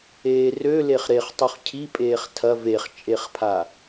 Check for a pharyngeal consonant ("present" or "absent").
absent